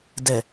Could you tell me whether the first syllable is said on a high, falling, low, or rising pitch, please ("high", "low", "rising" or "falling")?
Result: low